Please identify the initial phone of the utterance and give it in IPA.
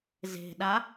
z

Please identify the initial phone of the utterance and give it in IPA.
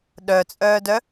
ɗ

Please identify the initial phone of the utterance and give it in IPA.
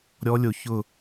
ɾʲ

